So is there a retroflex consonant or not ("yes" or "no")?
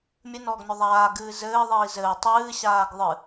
no